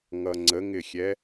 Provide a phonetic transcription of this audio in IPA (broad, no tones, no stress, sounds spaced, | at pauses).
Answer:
ŋ ʌ ŋ͡ǀ ə ŋ ɪ xʲ ɛ